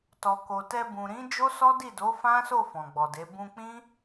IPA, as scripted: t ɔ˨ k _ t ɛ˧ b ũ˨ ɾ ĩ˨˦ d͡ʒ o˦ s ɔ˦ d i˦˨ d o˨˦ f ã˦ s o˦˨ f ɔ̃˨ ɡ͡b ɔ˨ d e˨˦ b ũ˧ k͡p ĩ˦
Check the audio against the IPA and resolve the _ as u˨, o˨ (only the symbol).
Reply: o˨